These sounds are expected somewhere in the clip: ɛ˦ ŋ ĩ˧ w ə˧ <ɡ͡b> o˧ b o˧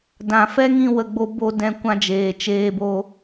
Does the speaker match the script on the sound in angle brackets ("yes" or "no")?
yes